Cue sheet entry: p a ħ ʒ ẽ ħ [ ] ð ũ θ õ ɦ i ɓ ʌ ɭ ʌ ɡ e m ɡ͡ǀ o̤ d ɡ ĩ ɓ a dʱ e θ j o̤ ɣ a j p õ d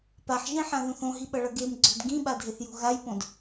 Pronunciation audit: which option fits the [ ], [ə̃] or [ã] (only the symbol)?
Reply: ã